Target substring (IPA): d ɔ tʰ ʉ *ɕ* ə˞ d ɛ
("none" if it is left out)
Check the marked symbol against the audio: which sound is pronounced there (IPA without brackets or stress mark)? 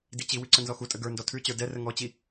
t͡ɕ